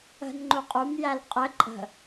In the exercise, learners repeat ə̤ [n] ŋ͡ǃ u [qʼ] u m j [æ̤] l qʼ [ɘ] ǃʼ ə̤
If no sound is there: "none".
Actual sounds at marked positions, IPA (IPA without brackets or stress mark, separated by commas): n, qʼ, æ, ɘ